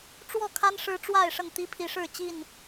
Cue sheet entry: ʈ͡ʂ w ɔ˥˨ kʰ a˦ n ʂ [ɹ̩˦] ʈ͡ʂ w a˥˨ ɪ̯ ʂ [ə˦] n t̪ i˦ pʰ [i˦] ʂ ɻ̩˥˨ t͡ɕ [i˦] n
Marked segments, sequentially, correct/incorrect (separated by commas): incorrect, incorrect, incorrect, incorrect